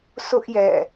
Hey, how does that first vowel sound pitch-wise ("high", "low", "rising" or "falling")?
high